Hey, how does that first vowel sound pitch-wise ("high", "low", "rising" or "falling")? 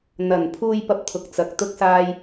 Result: low